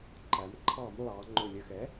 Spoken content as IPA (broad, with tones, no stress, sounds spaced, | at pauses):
ǃ æ˩˧ m ǃʰ ɑ˧˩˧ m lˠ ɑ˩˧ ŋ͡ǃ ʊ˨˩ lʲ ə˨˩ x ɛ˩˥